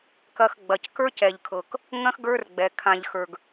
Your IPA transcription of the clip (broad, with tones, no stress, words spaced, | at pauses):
kɐ˨xɡ͡bɐ˩c kə˞˥cɛ˨ʎkʰɤ˨k | ŋɐ̃˥xɡə˞˦rɡ͡bɛ˩ kʰã˨ʎ xə˞˨ɡ